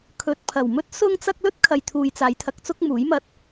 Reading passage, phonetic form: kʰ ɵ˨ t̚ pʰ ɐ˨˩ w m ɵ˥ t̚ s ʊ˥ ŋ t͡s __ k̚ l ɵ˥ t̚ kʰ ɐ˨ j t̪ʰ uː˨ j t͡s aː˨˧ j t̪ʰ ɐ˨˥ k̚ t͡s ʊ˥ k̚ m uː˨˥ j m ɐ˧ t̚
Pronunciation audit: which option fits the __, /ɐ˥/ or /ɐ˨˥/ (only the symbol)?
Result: ɐ˥